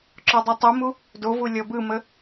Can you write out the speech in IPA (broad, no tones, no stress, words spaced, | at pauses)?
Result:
ǁɔdˤutˤɯmu | dovu lʲɔbɯmə